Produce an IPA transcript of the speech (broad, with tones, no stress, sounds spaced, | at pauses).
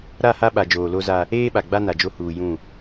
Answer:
ɾ a˦˨ h a˦ ɓ a˨ d͡ʒ oː˨ l o˦ z a˦ | eː˦ ɓ a˨ ɡ͡b a˦ n a˨ d͡ʒ o˦ h uː˨ j ũ˦˨